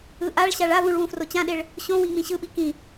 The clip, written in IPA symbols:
ɯ ʔ a ɭ ɕ a ɭ a v ũ ɭ w ũ f r o t͡ɕ ã ɗ e ɭ | ɕ õ w ĩ ŋ͡m ĩ ɕ ɯ ɓ i k ĩ

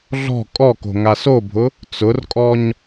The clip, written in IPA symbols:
ɮ ɔ̤ kʼ ɔ k o̤ ŋ a s o bʱ ʊ | t͡s ʊ r kʼ ɔ ɲ

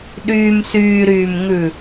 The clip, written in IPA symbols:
ɗ yː m s yː ɾ yː m ŋ ʉ

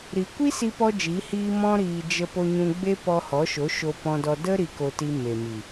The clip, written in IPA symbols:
ɾ i˨ kʷ i˦ s i˦ p ɔ˦ d͡ʒ i˨˦ h iː˦ m ɔ̃˧ ɾ iː˨ d͡ʒ ə˧ p o˧ ɲ ũ˧ ɡ͡b e˦ p ɔ˧ h ɔ˨˦ ʃ o˨˦ ʃ o˧ p ɔ̃˧ d ɔ˧ d ə˦ ɾ i˧ k o˧ t i˧ m e˨ m i˨

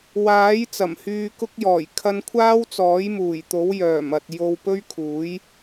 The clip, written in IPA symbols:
w aː˨˥ j t͡s ɐ˨˩ m h yː˧ k ʊ˥ k̚ j ɔː˨˩ j kʰ ɐ˧ n kʷʰ aː˥ w t͡s ɔː˨˥ j m uː˨˩ j t̪ o˨˥ w j œː˨˩ m ɐ˨ t̚ j o˧ w p ɵ˥ ɥ kʰ uː˨˥ j

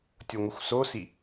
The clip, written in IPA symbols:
tʲ o ŋʷ ɨ xʷ s o s i

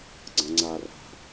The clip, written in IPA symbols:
ɡ͡ǀ ɐ̃ ŋ͡ǀ a r a̤

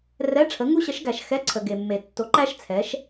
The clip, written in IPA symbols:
r ɛ˧˥˧ ʈ͡ʂʰ ə˨˥ ŋ u˦˥ ɕ ə˨˥ ʃ ɡ æ˨ ʃ x ɛ˧˥˧ ǀʰ ə˨ ɡ e˨ mː e˨ tː o˨˥ ǃ æ˦˥ ʃ t͡sʰ ɛ˨˥ ʃ

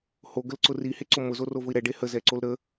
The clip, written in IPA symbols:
h o ɡ ə l ǀ ʊ r i h e ǀ o m ʊ z o r o v ʊ i̯ ɾ ɛ ɖ e h ə z ɛ ǀ o l ɾ ə

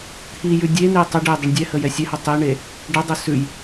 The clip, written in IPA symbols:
t̪ʰ i j ʉ dʲ e n̪ e tˤ ə ɖ e dˤ ɛ ɳ dʲ ɛ h ə j ɛ sʲ ɛ h o tˤ i ɳ e | ɖ ə dˤ o s ʉ j

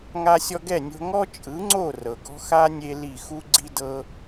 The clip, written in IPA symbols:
ŋ a˧ sʲ ɔ˧ ɡ ɛ˦˨ nʲ o̤˧ ŋ ɔ˦ t͡ʃʼ ɯ˨˦ ŋ͡ǀ o˦˨ r ɤ˨ ɡ ɔ̤˦ x a˦ nʲ e˦ l i˦˨ x u˦ ɡ͡ǀ i˦ d ɤ˦

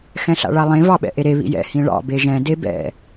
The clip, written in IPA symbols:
x ɛ̃ ɬ a̰ ɭ a lˠ ẽ v ɑ ɓ ɛ̰ ʔ e ɾ e β ḭ j ɛ̰ h ĩ ɭ ɑ̰ b e ʒ ɛ̃ d e b ɛ̰

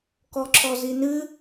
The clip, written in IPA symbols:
k ɔ ǁ ɔ z i n ɨ

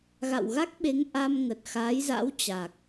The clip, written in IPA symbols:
ɣ a̰˧˨ w ɣ a˦˥ k̚ ɓ e˨˦ ŋ ʔ a˧ m ŋ ə˨˩ t̚ x aː˨˦ j z a̰˧˥ w t͡ɕ a˨˩ k̚

